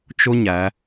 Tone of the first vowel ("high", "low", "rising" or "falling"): high